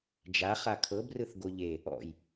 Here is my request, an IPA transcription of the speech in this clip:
d͡ʒ a χ a kʰ ɤ b r ɯ θ ɡ o ʎ e | ɔ̰ j

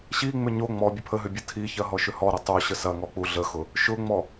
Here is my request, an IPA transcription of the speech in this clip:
ɕ i ŋ͡m ʏ ɲ o ŋ͡m ɔ bʲ ə pʰ ə ɦ ʏ bʲ ə tʰ i ç ɐ ɦ ɔ ʃ ʏ h ɔ ɾ ɐ tˤ o ɕ ə s ɐ ŋ ɔ k͡p u ɮ ə x ʊ | ʃ ʊ ŋ͡m ɔ

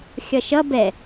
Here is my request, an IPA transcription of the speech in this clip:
xʲ ʌ ʃ ʌ b ɛ

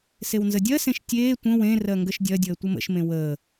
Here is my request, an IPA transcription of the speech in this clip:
s e w n z ə dʲ ɜ s ẽ ʃ tʲ eː tʷ ə̃ w ẽ r ɜ ŋ ɡ ə ʃ dʲ ɜ dʲ əː tʷ ə m ə̰ ʃ m ẽ w əː

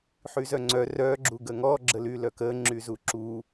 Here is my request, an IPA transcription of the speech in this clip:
ħ y z œ ŋ͡ǀ œ r œ ɡ͡ǁ u ɡ ə ŋ ɔ ɡ͡ǁ ə l y l œ k ə ŋ͡ǁ y z u ǁ u

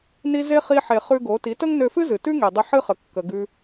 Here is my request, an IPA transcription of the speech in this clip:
n i˧ z e˦ χ i˧ ħ e˨ χ ʉ˧ ɡ o˨˦ t i˨˦ t ə˦ ŋ n ø˧ f ɨ˦ z ɨ˨ t ʉ˦ ŋ e˨ dˤ ə˧ ħ ɨ˦ χ ə˨ kː ə˧ ɡ ʉ˧

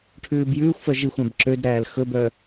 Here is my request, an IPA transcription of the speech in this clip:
ʈʰ ʉː b j ʉː xʷ f œ ʒ i xʷ æ̃ b ǁ ø d ɾ æː l x ɵ b œ

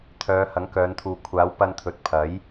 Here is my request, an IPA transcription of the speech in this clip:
t̪ʰ œː˨˧ h ɐ˨˥ ŋ k œː˨˧ n t̪ʰ uː˨ kʷʰ aː˨˥ w p ɐ˧ n t̪ʰ ɵ˨ t̚ pʰ ɐ˨˥ j

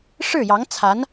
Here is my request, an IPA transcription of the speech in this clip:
ʂ ɻ̩˥˩ j ɑ˧˥ ŋ t͡sʰ a˧˥ n

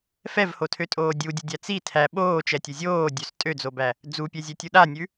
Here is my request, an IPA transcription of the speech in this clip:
f ɛ v h o tʰ ø tʼ oː dʲ u dʲ ʉ dʲ æ t͡s i tʰ æ ɓ oː t͡ʃ ɛ tʲ ʊ zʲ oː dʲ ø s tʼ ø d͡z o b æ | d͡z u pʲ ɛ zʲ ɛ tʲ u ɗ a nʲ ʉ

